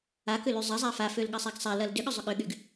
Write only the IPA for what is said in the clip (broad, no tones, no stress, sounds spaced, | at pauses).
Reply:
a k ʏ l y zˤ ɐ zˤ a f a f ø l ɠ ɐ sˤ a ɡ sˤ a l ɐ l d ʏ ɠ ʏ zˤ ʏ ɠ ʏ ɠ y ɡ